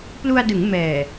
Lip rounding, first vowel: rounded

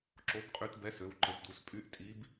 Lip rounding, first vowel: rounded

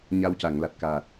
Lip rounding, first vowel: unrounded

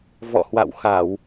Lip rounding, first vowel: rounded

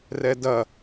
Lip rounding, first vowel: unrounded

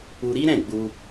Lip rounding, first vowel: rounded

